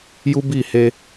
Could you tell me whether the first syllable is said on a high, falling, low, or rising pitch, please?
high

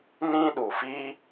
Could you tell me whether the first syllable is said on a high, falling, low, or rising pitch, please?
high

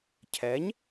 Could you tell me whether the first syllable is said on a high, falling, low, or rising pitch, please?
rising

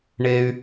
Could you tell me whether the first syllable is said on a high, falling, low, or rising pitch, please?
high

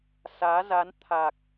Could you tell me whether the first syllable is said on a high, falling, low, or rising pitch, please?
rising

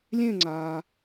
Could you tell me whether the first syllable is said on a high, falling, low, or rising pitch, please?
falling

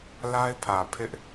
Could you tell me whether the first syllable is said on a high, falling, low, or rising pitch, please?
high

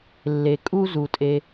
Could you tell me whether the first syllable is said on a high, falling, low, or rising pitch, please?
low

